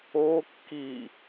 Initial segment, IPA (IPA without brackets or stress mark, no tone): o